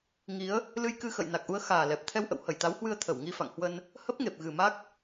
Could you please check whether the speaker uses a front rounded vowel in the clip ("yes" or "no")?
no